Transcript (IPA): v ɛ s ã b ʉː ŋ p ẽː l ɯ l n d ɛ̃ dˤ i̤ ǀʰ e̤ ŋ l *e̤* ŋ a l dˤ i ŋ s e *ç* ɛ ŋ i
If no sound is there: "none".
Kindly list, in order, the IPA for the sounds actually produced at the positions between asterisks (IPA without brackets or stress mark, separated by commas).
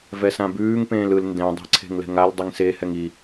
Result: ɛ̤, h